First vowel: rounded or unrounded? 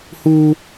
rounded